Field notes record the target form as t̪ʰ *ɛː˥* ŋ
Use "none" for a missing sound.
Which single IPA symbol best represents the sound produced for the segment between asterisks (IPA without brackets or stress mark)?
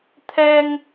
ɛː˥